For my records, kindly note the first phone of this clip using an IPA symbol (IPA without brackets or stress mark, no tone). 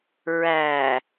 ɹ